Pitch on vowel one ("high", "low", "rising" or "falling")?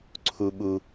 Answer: low